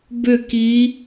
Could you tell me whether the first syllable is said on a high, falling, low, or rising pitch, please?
falling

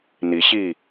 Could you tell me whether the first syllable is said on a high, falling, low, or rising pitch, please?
rising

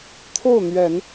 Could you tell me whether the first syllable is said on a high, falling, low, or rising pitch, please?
falling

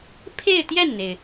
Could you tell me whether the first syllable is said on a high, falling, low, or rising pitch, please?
falling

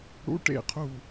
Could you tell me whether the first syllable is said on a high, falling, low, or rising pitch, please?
high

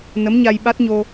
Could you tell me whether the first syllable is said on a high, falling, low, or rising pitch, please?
rising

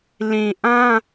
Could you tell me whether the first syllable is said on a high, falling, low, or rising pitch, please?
low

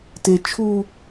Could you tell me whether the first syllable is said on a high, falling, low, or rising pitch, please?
high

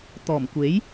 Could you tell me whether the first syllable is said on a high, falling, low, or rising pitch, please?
low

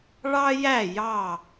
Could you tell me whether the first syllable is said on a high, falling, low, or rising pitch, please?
high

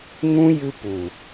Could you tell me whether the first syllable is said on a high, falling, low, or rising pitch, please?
high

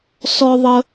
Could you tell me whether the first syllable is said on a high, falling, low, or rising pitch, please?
high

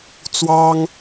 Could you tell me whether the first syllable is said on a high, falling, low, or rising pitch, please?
high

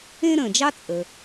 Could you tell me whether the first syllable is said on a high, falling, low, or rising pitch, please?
high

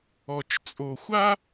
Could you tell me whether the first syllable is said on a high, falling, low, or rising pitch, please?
low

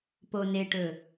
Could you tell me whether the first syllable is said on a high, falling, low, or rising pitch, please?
low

